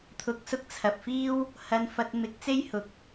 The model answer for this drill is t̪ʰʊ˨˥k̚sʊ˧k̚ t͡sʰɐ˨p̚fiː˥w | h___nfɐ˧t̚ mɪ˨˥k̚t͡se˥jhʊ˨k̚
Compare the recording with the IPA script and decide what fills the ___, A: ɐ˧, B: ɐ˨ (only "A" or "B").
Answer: A